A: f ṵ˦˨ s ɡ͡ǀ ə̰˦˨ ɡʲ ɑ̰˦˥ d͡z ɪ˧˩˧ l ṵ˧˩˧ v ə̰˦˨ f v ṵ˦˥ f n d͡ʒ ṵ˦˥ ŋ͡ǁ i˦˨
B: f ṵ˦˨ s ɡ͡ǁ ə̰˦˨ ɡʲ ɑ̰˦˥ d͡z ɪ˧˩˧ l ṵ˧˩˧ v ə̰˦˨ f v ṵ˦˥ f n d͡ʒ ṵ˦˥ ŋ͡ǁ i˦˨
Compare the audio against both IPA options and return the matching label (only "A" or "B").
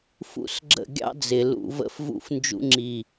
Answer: B